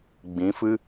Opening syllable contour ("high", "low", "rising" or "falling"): rising